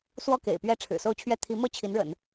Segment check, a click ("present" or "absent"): absent